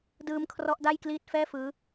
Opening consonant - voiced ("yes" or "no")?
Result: yes